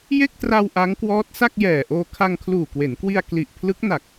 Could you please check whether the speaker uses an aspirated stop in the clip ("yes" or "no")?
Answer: yes